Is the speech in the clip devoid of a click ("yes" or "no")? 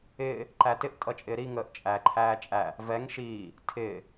no